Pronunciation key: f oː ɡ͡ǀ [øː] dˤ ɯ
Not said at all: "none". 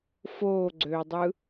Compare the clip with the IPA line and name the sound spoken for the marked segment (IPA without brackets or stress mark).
øː